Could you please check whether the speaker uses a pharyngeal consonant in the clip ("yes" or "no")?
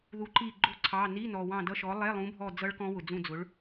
no